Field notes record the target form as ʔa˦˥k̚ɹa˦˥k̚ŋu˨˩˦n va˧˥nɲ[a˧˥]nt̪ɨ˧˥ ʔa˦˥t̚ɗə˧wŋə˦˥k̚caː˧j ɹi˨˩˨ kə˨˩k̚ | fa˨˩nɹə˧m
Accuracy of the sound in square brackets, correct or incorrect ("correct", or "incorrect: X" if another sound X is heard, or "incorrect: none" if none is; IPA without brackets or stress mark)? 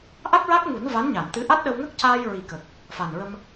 incorrect: a˨˩˨